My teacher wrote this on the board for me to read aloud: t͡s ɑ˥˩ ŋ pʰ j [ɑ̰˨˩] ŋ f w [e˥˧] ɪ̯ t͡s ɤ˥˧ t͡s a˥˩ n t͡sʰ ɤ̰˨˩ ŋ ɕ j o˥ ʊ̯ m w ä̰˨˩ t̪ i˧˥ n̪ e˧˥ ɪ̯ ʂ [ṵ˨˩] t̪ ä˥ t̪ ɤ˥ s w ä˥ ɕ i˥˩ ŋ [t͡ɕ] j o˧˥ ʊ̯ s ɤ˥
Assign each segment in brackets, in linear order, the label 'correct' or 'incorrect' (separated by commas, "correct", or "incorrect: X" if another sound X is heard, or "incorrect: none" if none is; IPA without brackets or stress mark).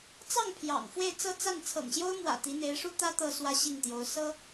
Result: correct, correct, incorrect: u˥, incorrect: t̪